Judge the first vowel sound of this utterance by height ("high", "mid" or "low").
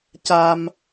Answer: low